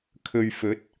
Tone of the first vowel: low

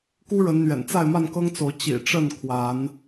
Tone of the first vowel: high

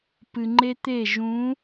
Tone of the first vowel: low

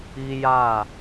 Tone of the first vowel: high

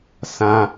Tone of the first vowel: high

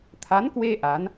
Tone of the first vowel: rising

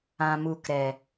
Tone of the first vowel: low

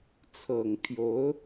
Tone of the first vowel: low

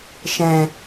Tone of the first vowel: low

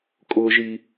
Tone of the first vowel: high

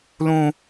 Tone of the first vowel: high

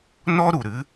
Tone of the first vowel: high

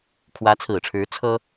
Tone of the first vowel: rising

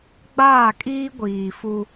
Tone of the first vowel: falling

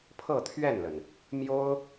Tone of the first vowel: falling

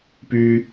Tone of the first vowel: high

